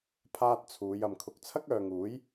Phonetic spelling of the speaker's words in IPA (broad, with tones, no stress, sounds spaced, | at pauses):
pʰ aː˧ t̚ t͡sʰ uː˨˧ j ɐ˨ m kʰ ʊ˨˥ k̚ t͡sʰ ɐ˥ k̚ œː˨ ŋ uː˨˥ j